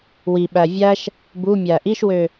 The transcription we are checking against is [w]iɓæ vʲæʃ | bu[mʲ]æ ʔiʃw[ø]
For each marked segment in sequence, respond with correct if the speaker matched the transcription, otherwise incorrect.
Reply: correct, correct, correct

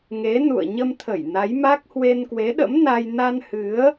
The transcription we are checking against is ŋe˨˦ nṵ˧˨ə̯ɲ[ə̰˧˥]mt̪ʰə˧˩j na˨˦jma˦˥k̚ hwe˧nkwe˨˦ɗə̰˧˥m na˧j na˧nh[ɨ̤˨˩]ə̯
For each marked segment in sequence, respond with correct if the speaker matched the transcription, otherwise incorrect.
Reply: incorrect, incorrect

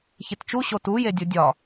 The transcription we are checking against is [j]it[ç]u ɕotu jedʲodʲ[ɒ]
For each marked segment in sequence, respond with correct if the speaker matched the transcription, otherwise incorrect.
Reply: incorrect, incorrect, correct

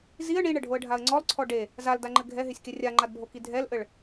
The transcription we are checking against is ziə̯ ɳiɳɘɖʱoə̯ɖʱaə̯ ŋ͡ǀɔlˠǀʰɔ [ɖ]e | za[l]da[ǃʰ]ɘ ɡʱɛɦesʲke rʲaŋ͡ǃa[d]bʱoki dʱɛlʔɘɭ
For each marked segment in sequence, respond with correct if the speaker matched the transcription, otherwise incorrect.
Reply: correct, correct, incorrect, correct

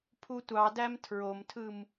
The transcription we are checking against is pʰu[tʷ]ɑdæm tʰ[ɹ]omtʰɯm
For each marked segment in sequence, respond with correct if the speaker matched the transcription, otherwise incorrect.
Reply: correct, correct

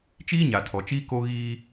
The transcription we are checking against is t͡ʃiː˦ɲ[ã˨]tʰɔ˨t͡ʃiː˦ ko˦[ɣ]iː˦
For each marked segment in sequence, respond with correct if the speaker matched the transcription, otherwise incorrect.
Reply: incorrect, correct

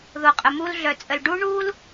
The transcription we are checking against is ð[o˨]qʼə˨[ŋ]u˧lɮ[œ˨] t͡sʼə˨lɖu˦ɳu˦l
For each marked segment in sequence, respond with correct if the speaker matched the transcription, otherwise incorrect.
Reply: correct, incorrect, correct

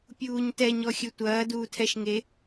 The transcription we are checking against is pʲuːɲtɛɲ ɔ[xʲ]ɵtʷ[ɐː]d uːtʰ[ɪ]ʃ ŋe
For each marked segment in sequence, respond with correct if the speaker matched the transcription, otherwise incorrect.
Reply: correct, correct, incorrect

